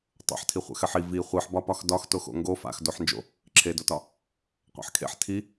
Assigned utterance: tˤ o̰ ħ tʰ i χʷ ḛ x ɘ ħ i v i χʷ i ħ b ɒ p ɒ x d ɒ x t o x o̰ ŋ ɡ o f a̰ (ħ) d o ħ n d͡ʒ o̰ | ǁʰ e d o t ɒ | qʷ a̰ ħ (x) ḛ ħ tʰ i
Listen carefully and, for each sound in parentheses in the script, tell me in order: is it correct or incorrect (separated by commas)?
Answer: incorrect, incorrect